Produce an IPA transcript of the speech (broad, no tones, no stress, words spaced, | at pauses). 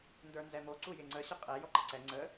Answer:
ndə˞nzɛmo ǀujɪŋ͡ǀə ɕəqʼɛ jɔǃəǀɛ ŋ͡ǀə